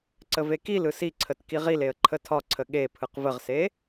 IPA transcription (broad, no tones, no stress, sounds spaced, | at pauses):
ǀ ə v e k i l ɯ s i ǀʰ ə t k i ʁ i l e ə̯ ǃʰ ə tʰ ɒ ǀʰ ə ɠ e pʰ ɯ q v ə ʁ s e